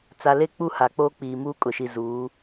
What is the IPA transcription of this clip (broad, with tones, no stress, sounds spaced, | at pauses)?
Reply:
t͡s a˨ l e˦ k͡p u˦˨ h a˨ k͡p oː˦ k͡p iː˨ m uː˦ kʼ ʊ˨ ʃ i˨ z uː˨˦